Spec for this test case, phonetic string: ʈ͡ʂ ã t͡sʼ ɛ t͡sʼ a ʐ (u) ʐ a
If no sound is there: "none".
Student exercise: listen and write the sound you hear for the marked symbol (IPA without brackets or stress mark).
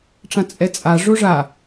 o